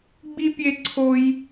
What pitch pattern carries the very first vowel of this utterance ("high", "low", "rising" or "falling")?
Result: high